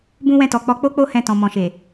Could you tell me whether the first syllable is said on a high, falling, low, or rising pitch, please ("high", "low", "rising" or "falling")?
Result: high